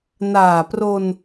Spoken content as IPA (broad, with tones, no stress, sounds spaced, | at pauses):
n aː˨˩ p r o˧ n